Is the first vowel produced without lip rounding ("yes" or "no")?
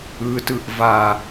yes